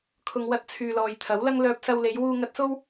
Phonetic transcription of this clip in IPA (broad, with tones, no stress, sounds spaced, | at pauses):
kʰ ʊ˨ ŋ w ɐ˧ t̚ t͡sʰ yː˨ l ɔː˨ j t̪ʰ ɐ˨˥ w l ɐ˥ ŋ l œː˧ p̚ s ɐ˧ w l e˨˧ j w uː˧ ŋ ɐ˧ t̚ s o˥ w